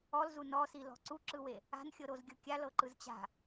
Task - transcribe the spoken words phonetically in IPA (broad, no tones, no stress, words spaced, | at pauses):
ɔlzu nɔsilɔ̤ ǀuǁɯwe | a̤nxʲɤɾozɡʲɤ kʲalɤǃɯz t͡ɕa̤